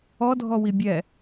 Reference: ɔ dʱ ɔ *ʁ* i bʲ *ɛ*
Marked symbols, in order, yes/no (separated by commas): no, yes